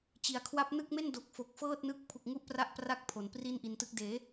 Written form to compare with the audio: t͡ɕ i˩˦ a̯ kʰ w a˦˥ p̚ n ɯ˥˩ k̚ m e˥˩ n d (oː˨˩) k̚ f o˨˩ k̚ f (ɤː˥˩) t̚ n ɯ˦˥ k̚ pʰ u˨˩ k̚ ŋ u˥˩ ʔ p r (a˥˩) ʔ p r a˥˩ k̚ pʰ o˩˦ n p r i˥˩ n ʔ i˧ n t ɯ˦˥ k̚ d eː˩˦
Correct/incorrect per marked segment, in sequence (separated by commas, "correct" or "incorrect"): incorrect, correct, correct